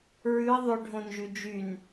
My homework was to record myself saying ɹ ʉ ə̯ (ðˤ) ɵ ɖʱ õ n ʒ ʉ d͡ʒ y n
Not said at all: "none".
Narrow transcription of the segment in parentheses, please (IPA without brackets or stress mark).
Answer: ðˤ